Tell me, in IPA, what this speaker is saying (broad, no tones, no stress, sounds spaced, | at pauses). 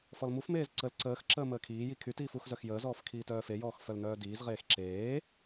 f ɔ l m u f m eː z ǀ ə l ǀ əː x ǁ əː m əː kʰ iː j i kʰ y t iː f u x z œ x j əː z ɔː f kʰ iː t œː f e j ɔː x f œ l n œː d iː z ʁ eː x ǁ eː